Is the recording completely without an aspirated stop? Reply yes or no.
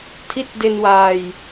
no